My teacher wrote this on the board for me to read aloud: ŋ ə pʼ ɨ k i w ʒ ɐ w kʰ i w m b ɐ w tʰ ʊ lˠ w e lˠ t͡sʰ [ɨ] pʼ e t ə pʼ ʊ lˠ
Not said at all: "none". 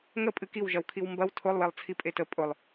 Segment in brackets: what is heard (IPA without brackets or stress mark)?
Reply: i